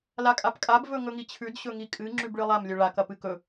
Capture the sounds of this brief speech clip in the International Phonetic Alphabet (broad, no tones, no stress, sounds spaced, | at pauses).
l a kʼ a p kʼ a b v ɵ ŋ ɵ ŋ i t͡ɕʰ ʉ d ɕ ɵ ŋ i kʼ ɨ ŋ͡ǁ ʉ b ɭ ɨ lˠ a m lʲ ɵ ɭ a k ɐ p ɨ k ɵ